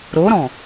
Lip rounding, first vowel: rounded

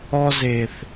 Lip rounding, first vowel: rounded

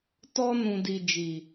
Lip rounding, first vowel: rounded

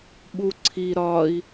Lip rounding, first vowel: rounded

